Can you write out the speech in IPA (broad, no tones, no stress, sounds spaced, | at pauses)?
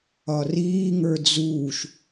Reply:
ɒ r iː ŋ ə˞ d͡z uː ʃ